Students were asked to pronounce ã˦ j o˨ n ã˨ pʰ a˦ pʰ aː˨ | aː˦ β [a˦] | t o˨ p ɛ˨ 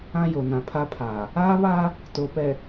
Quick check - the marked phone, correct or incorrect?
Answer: incorrect